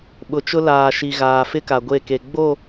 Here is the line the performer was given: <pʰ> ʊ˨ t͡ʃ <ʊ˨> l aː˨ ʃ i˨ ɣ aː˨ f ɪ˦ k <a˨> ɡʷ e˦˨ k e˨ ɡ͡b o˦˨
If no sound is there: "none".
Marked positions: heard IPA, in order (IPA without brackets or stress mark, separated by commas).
ɓ, ʊ˦, a˨